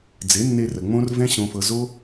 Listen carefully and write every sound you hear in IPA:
d͡z e˨˦ nː e˧ r ə˨ ŋ͡m õ˦ r v ɛ̃˦ ɕ õ˧ f ɤ˧ z o˦

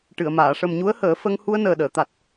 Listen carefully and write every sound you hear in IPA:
ʈ ɨ˨˩˨ ə̯ m aː˨˩˨ ʂ ə˨˩ m ɲ u˧˥ ə̯ h əː˨˩˦ f ə˧ ŋ h u˧ ə̯ n əː˨˩ ɗ əː˨˩˨ t̪ a˨˩ t̚

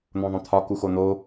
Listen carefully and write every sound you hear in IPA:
n̪ õ ðˤ õ t̪ʰ ɒ k u x o n̪ o

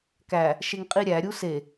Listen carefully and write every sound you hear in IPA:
k æ | ʃ e ŋ qʼ i ɾʲ æ ɾʲ u s e

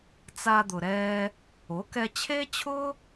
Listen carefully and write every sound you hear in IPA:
t͡s a˧ d̪ ʊ˩ ɾ ɛː˧ | o˩˥ k ɛ˧ t͡ɕʰ e˥ t͡ɕʰ ʊ˥

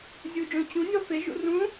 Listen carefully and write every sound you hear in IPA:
zʲ u d͡ʒ õ t͡ɕ ũ nʲ ɔ f e ʒ ṵ r ũ

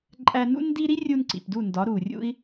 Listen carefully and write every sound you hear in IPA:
ǃʼ æ˧ n ṵ˦ n d i˦ ɾ i˦ rʲ u˧ n ǀ ḭ˨ p d u˦˨ n d ɒ˨˦ ɾ u˨ rʲ ṵ˦ i̯

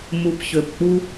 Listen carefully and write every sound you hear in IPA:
m u˨ p ç ø˨ p k͡p u˦

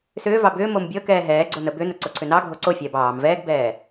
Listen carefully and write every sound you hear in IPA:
s ʏː v ɑ b ʏː m o m bʲ ɤ k ɛː ɦ ɛː ɡ͡ǀ o n ə b ʏ n ə ǀ o ǀʰ ʏ n ɑ ɡʱ o ǀ o fʲ ɛː b ɑː m v ɛː ɡ b ɛː

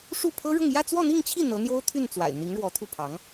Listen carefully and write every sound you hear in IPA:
ʂ u˥˩ pʰ ɤ˥ ɻ ʊ˥˧ ŋ j ä˥˧ t͡s w ɔ˥˧ n̪ i˥˧ ŋ t͡ɕʰ i˥˩ n̪ ɤ˧˥ n̪ j o˥ ʊ̯ t̪ʰ y˥˩ n t͡s w a̰˨˩ ɪ̯ n̪ i˧˥ ŋ ɻ w ɔ˧˥ t̪ʰ u˥˩ pʰ ɑ˧˥ ŋ

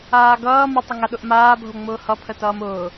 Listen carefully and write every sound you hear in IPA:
aː ɡ ʌː m ə tˤ ə ŋ a ɗ ʊ ʔ m aː bʱ o ŋ͡m ʊː h ʌ pʰ ə t ʌː m ʊː

